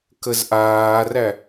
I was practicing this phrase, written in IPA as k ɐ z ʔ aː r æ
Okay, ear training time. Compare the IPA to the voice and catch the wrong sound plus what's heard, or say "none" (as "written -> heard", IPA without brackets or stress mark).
ɐ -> ə